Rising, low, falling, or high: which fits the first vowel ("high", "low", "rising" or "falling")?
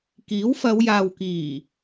rising